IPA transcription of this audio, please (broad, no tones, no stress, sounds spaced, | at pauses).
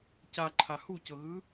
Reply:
c a ǃʰ a h u c ɤ ɣ ɯ